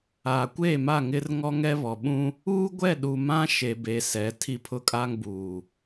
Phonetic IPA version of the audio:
aː˨ kʷ eː˦˨ m a˦˨ ŋ ɪ˦ r ŋ ɔ˦ ŋ ɛ˦ β ɔ˨ ɓ ũ˦ | uː˦ ɡʷ ɛ˦˨ ɗ u˨ m ã˦ ʃ e˨ b e˨ s ɛ˨˦ tʰ i˦ pʰ ʊ˦ kʼ a˦ ŋ b uː˨

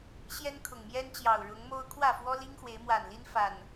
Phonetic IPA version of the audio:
ɕ j ɛ˦ n kʰ ʊ˨˩ ŋ m j ɛ˦ n t͡ɕ j ɑ˨˩ ʊ̯ ɻ ʊ˨˦ ŋ m o˦ ʊ̯ kʰ w ä˥˨ f w ɔ˦ l i˦ ŋ x w e˨˦ ɪ̯ m w a˨˩ n l i˦ n f a˨˩ n

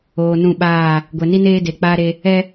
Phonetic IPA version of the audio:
oː˨ n ũ˦˨ ɓ aː˦˨ | ɡʷ ɛ˨ n i˦ n eː˦ d e˨ k͡p aː˦ ɾ e˦ | ɛ˦

